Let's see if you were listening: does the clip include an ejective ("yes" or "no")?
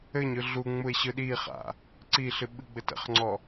no